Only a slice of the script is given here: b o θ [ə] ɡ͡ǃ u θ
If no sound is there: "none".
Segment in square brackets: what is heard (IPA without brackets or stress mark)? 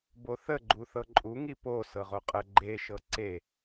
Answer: ə